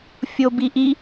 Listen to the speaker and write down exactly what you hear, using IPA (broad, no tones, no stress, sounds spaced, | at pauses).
fʲ o b i ʔ i